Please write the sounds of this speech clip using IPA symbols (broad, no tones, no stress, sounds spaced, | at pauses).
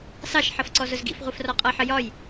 s ɑ ʃ ħ ʌ f ǀ ɔ z ʊ z ɡ ḭ f ʁʷ i f r ɒ qʼ ʌ ħ ə j ɒ j